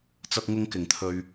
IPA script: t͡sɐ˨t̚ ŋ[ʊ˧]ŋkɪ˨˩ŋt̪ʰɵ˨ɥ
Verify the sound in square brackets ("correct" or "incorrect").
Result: correct